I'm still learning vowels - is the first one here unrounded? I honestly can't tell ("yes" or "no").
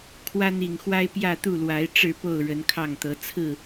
yes